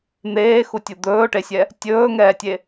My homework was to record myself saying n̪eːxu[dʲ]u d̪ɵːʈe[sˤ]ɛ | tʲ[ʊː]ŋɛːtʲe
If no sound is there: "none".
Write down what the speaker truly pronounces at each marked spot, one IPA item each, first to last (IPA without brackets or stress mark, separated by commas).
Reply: tʲ, sʲ, ɵː